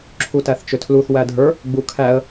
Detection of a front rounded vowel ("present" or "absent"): present